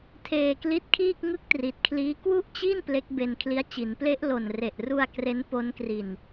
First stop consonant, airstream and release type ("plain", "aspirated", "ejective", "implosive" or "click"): aspirated